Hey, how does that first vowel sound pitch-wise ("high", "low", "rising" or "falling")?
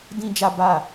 high